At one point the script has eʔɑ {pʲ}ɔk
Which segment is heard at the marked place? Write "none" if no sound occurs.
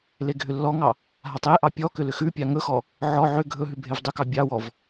pʲ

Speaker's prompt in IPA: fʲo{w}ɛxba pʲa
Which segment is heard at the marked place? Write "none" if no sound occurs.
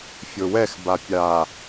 w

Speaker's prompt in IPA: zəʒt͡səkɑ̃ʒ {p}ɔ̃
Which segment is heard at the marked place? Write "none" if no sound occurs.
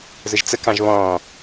β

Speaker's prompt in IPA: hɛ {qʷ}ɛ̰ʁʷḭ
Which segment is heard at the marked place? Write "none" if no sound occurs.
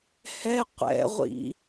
qʷ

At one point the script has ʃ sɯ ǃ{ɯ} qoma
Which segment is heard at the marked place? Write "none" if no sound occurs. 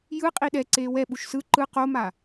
ɯ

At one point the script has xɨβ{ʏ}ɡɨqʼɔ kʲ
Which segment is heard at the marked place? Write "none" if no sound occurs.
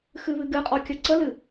ɨ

